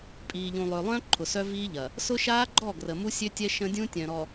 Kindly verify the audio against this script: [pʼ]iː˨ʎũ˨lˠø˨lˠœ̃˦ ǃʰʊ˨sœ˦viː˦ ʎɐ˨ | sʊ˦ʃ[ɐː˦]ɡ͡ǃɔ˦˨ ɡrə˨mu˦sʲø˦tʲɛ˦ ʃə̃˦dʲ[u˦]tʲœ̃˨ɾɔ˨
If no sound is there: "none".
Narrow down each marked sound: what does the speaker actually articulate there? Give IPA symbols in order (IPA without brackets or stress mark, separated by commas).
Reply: pʼ, aː˦, ũ˦